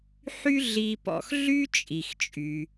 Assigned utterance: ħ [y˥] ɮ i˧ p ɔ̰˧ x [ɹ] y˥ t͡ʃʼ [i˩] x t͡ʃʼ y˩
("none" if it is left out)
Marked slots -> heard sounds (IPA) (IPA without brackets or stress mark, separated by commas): y˥, ɮ, i˩